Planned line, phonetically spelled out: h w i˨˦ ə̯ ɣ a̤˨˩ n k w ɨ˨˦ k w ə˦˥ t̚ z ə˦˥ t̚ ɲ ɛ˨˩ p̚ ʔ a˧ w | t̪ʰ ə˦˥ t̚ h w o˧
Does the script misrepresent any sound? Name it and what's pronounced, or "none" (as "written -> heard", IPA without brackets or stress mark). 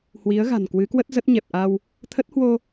none